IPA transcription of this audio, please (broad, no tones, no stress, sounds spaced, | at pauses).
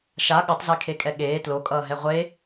ʃ a ɠ ʌ tˤ z e kʰ e kʼ ɛ ɠ eː t l o kʼ ʌː ɦ ɛ ʁʷ e